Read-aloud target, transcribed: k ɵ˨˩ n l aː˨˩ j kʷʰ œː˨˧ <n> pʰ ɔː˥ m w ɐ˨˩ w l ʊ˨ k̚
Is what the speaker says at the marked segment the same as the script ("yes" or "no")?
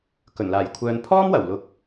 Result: yes